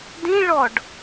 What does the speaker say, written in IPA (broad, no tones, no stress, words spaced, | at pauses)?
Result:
dĩ ɭɔɖ